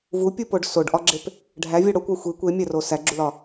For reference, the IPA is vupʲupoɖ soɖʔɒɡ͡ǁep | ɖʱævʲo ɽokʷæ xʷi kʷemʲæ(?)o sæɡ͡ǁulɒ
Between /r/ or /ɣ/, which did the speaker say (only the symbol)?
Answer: r